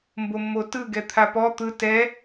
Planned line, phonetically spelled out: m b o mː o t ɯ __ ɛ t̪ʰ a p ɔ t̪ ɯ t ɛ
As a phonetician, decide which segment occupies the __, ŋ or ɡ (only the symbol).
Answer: ɡ